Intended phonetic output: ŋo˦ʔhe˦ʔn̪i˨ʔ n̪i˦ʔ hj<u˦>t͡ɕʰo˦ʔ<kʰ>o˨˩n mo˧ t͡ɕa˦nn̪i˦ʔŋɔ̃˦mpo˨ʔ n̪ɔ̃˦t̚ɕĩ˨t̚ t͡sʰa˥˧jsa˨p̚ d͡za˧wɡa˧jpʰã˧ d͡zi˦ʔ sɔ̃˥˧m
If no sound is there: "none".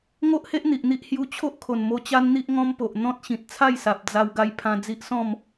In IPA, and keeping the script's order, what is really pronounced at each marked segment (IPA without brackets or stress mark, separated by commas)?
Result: u˧, kʰ